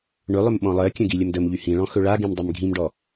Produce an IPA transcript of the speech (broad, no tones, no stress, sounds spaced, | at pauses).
ɳ ɵ lˠ ɵ m ɓ ɔ̃ lˠ ɜ kʲ ə̃ ɡ i lʲ ə m d ə m ʎ y h ĩ ɭ ɔ̃ x ɵ ɭ a ɡ ĩ m dˤ ɵ m ɡʱ ĩ m ɖ ɔ